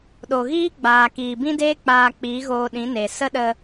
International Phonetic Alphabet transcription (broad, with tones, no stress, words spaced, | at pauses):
ɗo˨ɣiː˦ɡ͡baː˨ kiː˨bĩ˦deː˦ k͡paː˧ k͡piː˨˦ɣoː˧ɗĩ˨˦ ne˨ sə˦ɗə˧